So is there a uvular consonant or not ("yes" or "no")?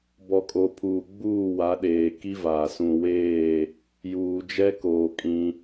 no